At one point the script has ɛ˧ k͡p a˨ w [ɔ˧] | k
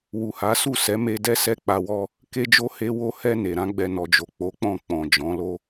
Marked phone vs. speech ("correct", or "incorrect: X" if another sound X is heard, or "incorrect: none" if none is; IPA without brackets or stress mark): correct